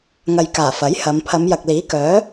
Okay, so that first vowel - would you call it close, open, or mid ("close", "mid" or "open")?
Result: open